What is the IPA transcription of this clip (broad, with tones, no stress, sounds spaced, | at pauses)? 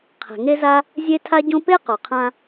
qʰ ɛ̤˩ ŋ e˥ z a˥ | zʲ e˥ tʰ a˥ ɟ õ˥ p e˥ q ɔ˩ qʰ ã˧